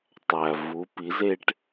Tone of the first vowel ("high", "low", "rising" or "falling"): low